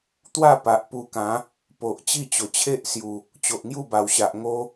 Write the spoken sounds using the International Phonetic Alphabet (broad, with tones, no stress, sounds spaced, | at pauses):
t̪ w a˥˧ p a˨ ʔ p u˧ k ã˨˦ | p o˨ ʔ t͡ɕ i˥˧ t͡ɕ o˨˩ t͡ɕʰ e˦ ʔ s j u˨˩ | t͡ɕ o˨ ʔ ŋ j u˥˧ b a˨˩ w ɕ a˨ ʔ ŋ o˦